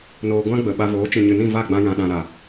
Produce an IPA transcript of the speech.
n oː˧ ɡʷ ã˦ ɡ͡b ə˨ ɓ a˧ v oː˨˦ t͡ʃ ĩ˨ ɲ ɨ˨ n ĩ˦˨ v a˦˨ ɡ͡b ã˧ j ã˨ ɗ ã˨ ɾ a˨

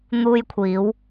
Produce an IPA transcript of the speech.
n̪ uː˧ j kʷʰ iː˨˧ w

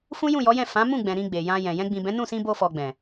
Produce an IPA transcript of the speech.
f ũ˦ j ũ˦˨ j ɔ˨˦ j ɛ̃˦˨ f ã˨˦ m ũ˦˨ ɡ͡b ɛ̃˨ ɾ ĩ˧ ɡ͡b e˨ j ã˧ j ɛ̃˨ j ɛ̃˧ ɡ͡b ĩ˨ b ɛ̃˨˦ n ũ˦˨ s ĩ˧ b o˧ f ɔ˨ ɡ͡b ɛ̃˨

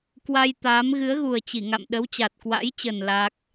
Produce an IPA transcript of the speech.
k w a˧ j t̪ aː˨˦ m ɣ ɨ˨˦ ə̯ ɣ u˨˩ ə̯ t͡ɕ i˧˩ ŋ a̰˧˨ m ɗ ə˨˦ w t͡ɕ a˨˩ t̚ k w a̰˧˥ j t͡ɕ ə˨˩ n l a˦˥ k̚

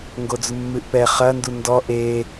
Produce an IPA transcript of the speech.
ŋ ɡ o d͡z u mː ɨ ʔ p ɛ χ ɐ n d u n d ɔ ʔ e

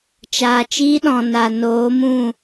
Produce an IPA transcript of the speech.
t͡ʃ aː˨ t͡ʃ iː˧ ɗ ɔ̃˨ n a˨ n oː˨˦ m ũ˦˨

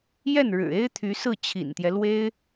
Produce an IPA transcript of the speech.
j ɛ˥˩ n ɻ ɻ̩˨˩ e˥ ɪ̯ t̪ʰ y˧˥ s ɹ̩˥˩ t͡ɕʰ ḭ˨˩ n t̪ j ɛ˦ l w e˥ ɪ̯

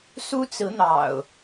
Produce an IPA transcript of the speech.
s u˦ t͡s ɹ̩˨˦ n̪ ɑ̰˨˩ ʊ̯

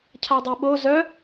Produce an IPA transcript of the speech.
cʰ a dˤ ɛ ɓ o z œ

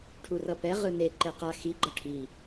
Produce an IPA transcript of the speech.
ʈʰ u r ʌ p ɛ ʁ ɯ n e ǃ ɛ q a x i ɡ͡ǃ ʌ ʈʰ i

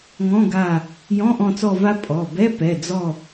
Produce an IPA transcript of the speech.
ŋ ɔ̃˧˥˧ ɡ a˦˨ | j ɔ̃˧˥˧ ʔ ɔ̃˦˨ t͡s ɔ˦˨ v a˦˥ pʼ ɔ˩˧˩ b ɛ˧˥˧ p ɛ˩˧˩ d͡z ɔ˦˨

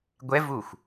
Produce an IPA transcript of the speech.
ɡʷ ɛ v u xʷ

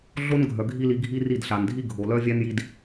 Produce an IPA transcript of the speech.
ɮ o˦ n ɡʱ œ˨ ɡʱ i˦ l i˧ ɡʱ i˦ r i˦˨ d ɬ a˨ n dʱ i˦ ɡʱ o˨ l œ˦ vʲ æ˦ n j i˧ d

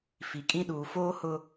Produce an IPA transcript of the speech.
f i˨ kʼ ĩ˦ ɗ uː˨ f oː˦ h ʊ˦

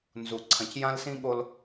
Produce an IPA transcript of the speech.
n z u˨ ǀʰ ɐ̃˨ c j ã˦ l s ĩ˦ ɠ o˦ l

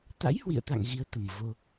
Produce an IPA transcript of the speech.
t̪ a̰˧˥ j h w ḭ˧˨ ə̯ t̪ a̰˧˨ ŋ ɣ i˨˦ ə̯ t̪ ə˨˩ m v o˧

